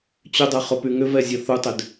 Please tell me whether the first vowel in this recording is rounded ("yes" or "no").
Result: yes